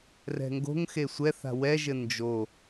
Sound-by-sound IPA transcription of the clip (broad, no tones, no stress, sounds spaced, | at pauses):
r ɛ̤ ŋ ɡ o̤ ŋ x e sʷ ɛ θ a̤ w ɛ ʒ ɘ n d͡ʒ o